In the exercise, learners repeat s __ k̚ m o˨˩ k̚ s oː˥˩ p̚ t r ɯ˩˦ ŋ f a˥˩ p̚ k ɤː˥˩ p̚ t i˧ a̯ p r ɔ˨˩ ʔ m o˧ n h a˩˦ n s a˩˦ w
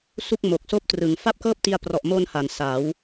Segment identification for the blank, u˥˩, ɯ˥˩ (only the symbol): u˥˩